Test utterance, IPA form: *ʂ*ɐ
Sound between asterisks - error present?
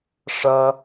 no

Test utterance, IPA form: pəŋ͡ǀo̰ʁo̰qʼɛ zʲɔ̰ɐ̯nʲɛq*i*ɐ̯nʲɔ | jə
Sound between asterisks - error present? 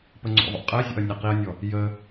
no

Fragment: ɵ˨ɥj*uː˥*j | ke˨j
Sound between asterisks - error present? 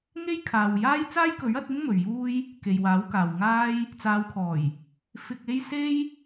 no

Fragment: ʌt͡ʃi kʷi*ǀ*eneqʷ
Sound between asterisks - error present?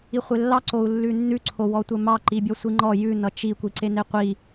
no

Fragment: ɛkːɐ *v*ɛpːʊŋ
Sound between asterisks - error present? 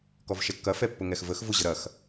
yes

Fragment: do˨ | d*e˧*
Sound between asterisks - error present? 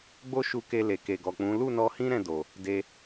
no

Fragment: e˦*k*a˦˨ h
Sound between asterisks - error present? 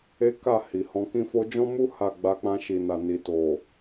no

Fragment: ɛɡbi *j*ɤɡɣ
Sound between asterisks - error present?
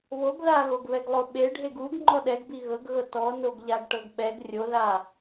yes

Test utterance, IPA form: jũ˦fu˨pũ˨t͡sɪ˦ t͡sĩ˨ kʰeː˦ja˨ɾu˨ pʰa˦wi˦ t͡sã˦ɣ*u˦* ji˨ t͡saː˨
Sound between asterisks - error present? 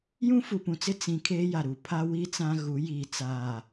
yes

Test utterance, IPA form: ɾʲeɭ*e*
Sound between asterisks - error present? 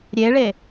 no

